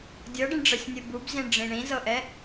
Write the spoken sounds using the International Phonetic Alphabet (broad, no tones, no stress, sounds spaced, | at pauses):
dʲ ɤ ɖ i ɳ ɖ͡ʐ ɤ sʲ nʲ ɯ b u b z ĩ ɳ ɖ͡ʐ ĩ ɳ ĩ z ɤ ʔ ɛ